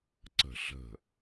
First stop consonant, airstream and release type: click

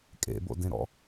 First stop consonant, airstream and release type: ejective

